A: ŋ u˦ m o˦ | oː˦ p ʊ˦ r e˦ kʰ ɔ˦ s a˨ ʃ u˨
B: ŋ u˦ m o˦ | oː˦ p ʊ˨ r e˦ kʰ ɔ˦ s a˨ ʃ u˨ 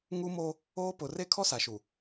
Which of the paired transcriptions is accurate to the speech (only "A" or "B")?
B